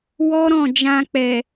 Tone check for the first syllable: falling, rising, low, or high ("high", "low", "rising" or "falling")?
high